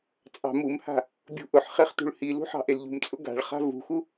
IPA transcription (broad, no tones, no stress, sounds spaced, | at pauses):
t͡sʼ ɑ̤ m u m h a̤ | bʲ ṳ ʔ ʊ ħ χ e χ t ṳ ɭ h i l ṳ ħ ɑ̤ ʔ e l ʎ ṳ m t͡sʼ ʊ ɡ a̤ ɭ χ a̤ v ṳ x u